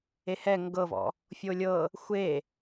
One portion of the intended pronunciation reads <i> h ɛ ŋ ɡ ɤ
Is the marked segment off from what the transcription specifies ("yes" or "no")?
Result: yes